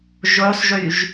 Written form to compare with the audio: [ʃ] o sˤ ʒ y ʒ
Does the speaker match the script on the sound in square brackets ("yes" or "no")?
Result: no